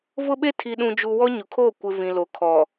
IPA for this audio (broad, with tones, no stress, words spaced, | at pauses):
vʊ˦ɓe˦ tʰi˨ɗũ˨d͡ʒu˨ wɔ˦ ɲʊ˨kʰoː˦˨ kʷɪ˨ vĩ˨lo˨kʰɔ˨